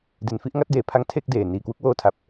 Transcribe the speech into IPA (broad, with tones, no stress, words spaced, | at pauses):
de˨˩nfi˥˩ʔ ŋa˥˩t̚deː˨˩pʰa˦˥ŋ tʰeː˥˩k̚deː˨˩ niː˨˩kwu˦˥k̚ woː˦˥tʰa˨˩p̚